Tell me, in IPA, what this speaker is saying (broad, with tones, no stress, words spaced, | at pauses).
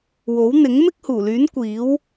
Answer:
wo˨˥wn̪ɪ˨˥ŋ mɪ˥k̚huː˨˩lyː˨˥n kʷiː˨˥w